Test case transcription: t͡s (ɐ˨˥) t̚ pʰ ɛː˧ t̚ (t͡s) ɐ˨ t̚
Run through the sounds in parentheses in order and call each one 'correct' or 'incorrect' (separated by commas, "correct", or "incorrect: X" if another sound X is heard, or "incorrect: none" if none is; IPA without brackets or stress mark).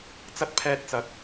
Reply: incorrect: ɐ˥, correct